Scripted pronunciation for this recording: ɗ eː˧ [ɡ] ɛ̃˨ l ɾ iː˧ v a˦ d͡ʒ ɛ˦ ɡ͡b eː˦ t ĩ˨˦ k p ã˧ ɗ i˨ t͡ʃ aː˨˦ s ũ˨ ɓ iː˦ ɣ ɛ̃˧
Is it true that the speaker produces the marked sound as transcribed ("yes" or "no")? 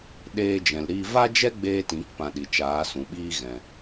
no